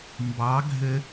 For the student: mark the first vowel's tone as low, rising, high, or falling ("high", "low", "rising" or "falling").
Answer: rising